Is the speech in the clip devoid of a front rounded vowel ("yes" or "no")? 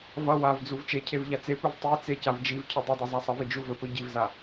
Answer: yes